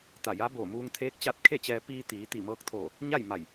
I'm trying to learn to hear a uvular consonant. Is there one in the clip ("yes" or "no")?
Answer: no